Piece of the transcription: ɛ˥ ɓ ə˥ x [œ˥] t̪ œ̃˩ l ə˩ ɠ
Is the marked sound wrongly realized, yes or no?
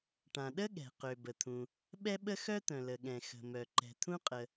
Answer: no